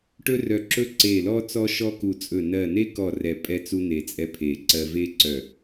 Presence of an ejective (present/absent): present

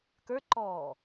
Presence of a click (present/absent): present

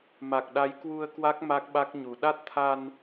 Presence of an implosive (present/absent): present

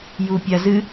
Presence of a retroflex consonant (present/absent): absent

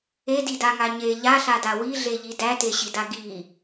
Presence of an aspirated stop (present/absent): absent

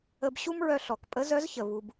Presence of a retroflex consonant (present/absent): absent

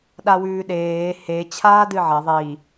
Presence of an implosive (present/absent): present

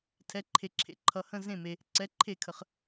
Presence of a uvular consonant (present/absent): present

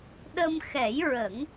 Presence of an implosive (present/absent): present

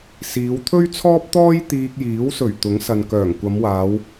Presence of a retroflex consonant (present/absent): absent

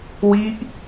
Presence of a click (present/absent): absent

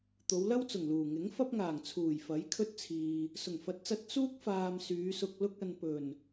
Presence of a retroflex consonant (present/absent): absent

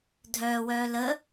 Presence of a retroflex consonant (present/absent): absent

